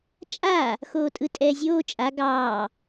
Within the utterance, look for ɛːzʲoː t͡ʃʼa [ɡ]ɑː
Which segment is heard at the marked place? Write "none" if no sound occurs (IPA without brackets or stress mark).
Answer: ɡ